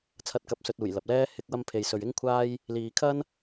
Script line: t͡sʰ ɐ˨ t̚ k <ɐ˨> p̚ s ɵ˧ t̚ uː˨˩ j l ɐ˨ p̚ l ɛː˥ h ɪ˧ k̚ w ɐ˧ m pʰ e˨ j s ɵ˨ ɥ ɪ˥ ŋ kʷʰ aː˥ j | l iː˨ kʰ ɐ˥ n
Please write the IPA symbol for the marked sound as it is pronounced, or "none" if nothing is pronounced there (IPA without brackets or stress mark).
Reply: ɐ˨